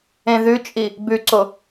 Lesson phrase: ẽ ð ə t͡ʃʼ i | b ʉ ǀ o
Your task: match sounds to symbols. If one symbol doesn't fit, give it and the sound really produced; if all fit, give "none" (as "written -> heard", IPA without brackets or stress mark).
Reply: ə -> ʉ